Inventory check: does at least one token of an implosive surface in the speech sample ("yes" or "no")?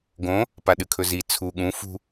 yes